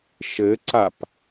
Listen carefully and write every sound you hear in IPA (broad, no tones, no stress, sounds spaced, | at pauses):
ʃ ɘ ǀ a p